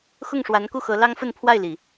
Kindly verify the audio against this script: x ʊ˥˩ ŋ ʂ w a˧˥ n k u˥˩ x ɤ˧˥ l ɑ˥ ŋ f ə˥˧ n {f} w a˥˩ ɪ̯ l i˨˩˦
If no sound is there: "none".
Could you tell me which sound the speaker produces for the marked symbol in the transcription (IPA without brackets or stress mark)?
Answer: pʰ